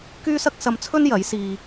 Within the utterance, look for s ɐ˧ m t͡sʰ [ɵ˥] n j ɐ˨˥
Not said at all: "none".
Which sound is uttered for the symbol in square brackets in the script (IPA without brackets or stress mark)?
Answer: ɵ˥